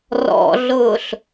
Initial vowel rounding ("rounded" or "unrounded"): rounded